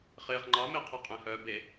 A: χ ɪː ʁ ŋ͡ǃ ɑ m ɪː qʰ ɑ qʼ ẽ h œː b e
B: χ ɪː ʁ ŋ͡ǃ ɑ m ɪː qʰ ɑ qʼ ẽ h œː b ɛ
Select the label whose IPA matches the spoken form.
A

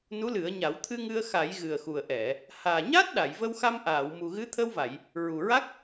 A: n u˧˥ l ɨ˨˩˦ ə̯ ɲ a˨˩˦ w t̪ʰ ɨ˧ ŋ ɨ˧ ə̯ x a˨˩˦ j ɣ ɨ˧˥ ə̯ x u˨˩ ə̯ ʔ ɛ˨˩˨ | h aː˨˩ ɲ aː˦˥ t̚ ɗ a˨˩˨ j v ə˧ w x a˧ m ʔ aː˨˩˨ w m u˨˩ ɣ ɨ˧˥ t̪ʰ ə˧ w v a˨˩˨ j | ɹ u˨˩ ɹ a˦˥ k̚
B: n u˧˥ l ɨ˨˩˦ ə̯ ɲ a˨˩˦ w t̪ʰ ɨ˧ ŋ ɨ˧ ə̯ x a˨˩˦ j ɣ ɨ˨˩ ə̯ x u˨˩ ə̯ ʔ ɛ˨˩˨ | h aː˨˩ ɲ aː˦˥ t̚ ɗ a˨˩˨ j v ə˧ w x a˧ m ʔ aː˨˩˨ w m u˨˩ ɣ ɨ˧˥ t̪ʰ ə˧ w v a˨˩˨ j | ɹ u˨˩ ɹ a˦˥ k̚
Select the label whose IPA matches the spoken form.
B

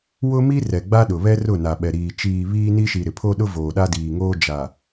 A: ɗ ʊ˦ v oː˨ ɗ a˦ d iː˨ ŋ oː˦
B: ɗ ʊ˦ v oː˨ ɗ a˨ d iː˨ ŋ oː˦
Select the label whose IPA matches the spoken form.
A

